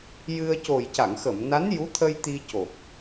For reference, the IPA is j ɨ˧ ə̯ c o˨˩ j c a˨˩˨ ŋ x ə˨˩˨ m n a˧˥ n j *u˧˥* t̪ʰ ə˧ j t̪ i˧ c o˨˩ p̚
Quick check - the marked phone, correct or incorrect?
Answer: correct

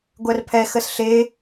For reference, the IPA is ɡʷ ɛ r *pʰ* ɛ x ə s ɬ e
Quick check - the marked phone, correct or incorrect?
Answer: correct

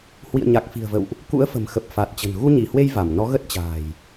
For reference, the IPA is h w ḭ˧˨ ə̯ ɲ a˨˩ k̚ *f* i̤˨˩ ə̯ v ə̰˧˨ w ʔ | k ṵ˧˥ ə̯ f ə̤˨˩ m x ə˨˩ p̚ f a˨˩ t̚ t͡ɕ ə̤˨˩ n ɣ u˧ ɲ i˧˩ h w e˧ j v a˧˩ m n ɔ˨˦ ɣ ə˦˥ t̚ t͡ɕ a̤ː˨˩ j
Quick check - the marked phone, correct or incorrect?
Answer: correct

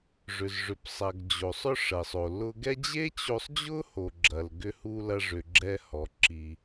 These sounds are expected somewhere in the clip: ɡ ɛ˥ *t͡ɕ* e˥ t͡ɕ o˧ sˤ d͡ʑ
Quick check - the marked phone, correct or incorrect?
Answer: incorrect: d͡ʑ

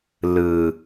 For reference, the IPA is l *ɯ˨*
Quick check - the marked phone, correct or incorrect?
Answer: correct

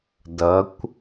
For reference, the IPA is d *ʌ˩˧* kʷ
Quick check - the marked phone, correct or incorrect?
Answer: correct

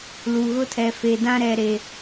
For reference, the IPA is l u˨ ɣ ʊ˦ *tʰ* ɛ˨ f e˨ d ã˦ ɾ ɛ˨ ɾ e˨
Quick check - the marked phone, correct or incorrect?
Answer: correct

